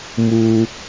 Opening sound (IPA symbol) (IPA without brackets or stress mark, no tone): m